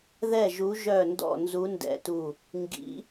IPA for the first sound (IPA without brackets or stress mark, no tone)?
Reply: ð